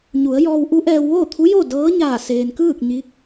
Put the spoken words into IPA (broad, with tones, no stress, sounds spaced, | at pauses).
ɲ u˩˧ ə̯ j ɔː˧ w ʔ u˧˥ ʔ ɛː˧ w ʋ oː˥˨ t̪ʰ u˧˥ j oː˥˨ d ɤː˧˥ ɲ aː˧˩ s eː˩ n k ɯː˥˨ k̚ ɲ i˧˥ k̚